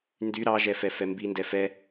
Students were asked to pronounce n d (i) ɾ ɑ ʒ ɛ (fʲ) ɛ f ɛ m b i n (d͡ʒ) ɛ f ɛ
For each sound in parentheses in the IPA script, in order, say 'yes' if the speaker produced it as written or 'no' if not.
no, no, no

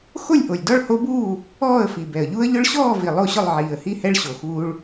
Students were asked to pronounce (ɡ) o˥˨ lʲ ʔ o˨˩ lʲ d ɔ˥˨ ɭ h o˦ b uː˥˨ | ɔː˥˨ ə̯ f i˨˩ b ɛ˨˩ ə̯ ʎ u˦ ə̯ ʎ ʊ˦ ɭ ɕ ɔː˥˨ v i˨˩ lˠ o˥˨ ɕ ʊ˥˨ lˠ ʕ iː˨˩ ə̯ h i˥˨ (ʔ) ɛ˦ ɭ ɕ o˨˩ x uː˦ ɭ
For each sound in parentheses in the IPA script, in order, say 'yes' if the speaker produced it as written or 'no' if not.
no, no

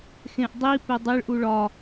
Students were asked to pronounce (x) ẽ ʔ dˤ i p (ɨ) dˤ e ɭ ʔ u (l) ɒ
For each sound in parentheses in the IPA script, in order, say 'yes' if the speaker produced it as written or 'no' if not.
yes, no, no

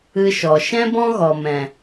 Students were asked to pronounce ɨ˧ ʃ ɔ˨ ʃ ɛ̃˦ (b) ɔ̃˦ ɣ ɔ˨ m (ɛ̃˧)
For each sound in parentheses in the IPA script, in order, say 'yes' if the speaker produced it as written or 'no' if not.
yes, no

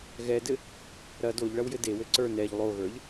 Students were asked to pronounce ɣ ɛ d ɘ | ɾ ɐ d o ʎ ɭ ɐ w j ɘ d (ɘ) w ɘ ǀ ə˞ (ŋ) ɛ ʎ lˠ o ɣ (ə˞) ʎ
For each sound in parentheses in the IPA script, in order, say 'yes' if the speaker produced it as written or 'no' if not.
no, no, yes

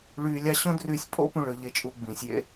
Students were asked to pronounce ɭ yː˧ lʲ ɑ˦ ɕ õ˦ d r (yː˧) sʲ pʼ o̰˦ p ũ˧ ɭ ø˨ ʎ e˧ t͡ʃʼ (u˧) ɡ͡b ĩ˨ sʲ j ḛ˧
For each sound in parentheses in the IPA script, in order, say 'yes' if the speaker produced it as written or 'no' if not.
yes, yes

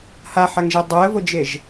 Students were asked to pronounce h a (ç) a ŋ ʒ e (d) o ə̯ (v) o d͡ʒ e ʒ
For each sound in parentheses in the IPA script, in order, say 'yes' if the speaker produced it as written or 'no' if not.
no, no, yes

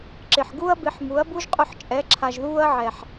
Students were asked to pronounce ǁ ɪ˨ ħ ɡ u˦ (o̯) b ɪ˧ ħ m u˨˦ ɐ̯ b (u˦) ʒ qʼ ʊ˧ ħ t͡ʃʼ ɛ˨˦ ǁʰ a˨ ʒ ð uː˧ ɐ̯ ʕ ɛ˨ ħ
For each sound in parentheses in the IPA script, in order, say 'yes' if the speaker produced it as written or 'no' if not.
no, yes

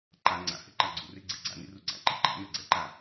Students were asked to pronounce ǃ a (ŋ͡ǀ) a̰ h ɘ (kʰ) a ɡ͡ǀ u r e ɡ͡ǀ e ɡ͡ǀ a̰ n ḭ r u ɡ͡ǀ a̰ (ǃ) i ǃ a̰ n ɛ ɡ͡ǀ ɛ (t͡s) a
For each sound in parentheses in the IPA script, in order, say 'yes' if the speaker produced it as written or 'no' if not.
yes, no, yes, no

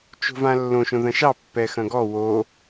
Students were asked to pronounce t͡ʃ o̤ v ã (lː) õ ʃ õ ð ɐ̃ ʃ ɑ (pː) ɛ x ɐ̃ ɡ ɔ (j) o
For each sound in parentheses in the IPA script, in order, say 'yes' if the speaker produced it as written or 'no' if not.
yes, yes, no

